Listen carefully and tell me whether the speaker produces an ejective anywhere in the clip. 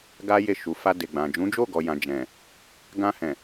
no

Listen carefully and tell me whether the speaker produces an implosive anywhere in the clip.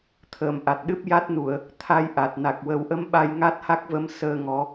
yes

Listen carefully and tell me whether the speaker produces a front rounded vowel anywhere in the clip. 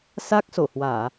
no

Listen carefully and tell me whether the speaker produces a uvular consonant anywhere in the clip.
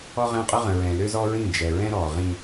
yes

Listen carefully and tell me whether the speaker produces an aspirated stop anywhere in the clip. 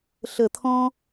yes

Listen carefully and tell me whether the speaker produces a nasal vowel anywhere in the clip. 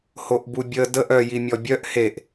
no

